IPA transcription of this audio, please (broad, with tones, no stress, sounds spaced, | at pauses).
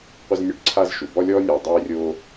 qʷ ə˦ z nʲ ɵ˦ ɖ ǀʰ a˦ z ʃ u˩ b ɔ˥ lʲ ɔː˥ nʲ oː˨ dˤ eː˦ rʲ oː˦